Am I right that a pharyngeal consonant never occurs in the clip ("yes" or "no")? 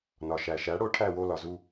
yes